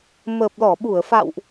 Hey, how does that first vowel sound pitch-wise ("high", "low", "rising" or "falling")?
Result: low